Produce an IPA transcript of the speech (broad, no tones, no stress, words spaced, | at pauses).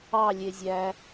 ɑ lʲezʲæ